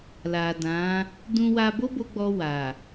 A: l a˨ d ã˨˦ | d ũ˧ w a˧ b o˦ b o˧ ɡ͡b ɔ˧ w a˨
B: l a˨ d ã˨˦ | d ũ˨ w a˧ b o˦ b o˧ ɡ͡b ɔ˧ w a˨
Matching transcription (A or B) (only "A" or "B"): A